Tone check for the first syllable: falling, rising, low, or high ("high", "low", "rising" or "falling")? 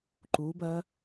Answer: rising